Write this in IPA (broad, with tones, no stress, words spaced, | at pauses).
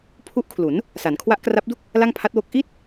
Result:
pʰu˦˥ʔkʰlu˩˦n | sa˩˦nkʰwa˦˥ʔkra˦˥p̚du˥˩k̚ | la˥˩ŋpʰa˦˥t̚wo˦˥k̚ ʔi˥˩t̚